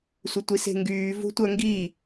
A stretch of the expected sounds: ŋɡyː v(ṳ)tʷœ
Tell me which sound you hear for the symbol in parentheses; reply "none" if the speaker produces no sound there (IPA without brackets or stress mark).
ṳ